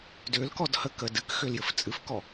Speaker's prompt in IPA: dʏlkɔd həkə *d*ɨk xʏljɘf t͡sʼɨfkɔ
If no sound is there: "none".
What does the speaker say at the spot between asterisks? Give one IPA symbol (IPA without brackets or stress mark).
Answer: d